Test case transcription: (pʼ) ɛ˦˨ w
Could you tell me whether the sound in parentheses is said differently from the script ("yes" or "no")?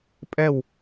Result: no